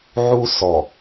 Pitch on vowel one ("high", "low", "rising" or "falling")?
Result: high